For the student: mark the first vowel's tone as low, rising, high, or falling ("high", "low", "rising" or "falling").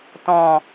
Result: low